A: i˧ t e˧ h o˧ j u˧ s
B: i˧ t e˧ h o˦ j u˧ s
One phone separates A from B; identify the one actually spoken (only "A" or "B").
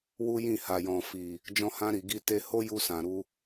B